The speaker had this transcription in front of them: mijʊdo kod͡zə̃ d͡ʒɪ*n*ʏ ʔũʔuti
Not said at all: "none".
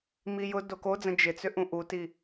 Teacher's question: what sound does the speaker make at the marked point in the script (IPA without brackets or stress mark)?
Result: t͡s